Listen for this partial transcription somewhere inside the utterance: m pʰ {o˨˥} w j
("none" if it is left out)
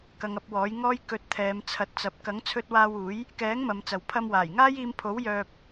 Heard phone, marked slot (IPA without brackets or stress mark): o˨˥